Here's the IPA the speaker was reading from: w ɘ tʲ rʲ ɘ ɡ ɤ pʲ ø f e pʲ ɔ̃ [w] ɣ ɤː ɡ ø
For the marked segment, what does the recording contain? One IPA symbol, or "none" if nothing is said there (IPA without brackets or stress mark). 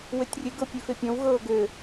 w